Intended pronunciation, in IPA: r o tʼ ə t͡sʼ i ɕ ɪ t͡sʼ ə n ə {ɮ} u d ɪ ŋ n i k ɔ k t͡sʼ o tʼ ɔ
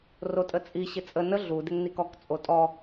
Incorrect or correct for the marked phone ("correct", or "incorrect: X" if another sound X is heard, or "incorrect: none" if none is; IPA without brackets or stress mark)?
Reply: correct